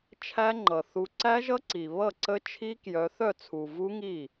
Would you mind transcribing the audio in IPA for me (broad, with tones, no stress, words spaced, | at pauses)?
t͡ʃʰæ˦˥ŋ͡ǃʌ˨˩ θu˨˦ǀæ˦˥ʒʌ˦˥ ǀi˨˩ βʌ˥˩ǀə˦˥t͡ʃʰi˦˥kjœ˨˦ θœ˥˩t͡sʰu˨˩vu˦˥ŋi˥˩